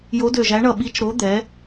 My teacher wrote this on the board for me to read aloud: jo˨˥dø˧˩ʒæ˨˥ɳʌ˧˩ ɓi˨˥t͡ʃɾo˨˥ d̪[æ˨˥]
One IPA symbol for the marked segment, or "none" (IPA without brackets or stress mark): ɛ˨˥